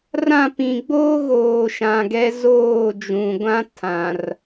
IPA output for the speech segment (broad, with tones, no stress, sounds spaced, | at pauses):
r ã˦˨ p ĩ˨ ɡ͡b oː˦ ɣ oː˨ ʃ ã˨ ɡ ɛ˦ z oː˦˨ d͡ʒ ũ˨ ɡʷ ã˦ tʰ ã˨ r